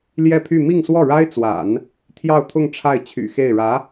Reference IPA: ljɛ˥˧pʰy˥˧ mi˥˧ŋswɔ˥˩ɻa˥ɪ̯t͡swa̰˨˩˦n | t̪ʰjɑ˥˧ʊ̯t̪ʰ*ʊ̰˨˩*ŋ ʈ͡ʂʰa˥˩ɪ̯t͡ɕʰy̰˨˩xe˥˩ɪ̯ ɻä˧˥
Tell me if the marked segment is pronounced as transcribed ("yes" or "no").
no